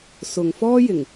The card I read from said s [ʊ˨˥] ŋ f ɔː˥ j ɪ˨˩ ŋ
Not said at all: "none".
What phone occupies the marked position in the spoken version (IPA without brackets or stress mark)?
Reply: ʊ˨